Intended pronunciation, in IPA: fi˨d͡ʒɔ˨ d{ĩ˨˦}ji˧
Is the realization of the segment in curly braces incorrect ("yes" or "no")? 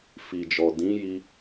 no